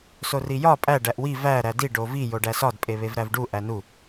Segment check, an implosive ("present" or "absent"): absent